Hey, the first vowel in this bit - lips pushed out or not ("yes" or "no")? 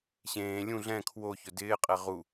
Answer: no